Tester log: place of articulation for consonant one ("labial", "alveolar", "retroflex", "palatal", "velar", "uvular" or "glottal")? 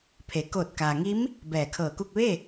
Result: labial